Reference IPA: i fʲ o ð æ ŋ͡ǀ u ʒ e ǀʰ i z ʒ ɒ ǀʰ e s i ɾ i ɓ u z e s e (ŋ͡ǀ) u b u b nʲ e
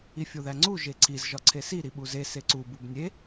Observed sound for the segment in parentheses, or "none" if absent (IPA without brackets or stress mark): ǀ